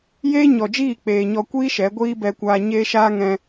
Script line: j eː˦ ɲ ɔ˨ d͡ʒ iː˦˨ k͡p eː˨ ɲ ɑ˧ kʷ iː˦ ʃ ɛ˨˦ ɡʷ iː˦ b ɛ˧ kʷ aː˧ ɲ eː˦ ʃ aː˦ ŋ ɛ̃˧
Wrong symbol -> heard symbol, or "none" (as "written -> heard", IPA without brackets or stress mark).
ɑ˧ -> ɔ˧